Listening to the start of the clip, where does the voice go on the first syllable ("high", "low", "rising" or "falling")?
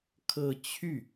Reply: falling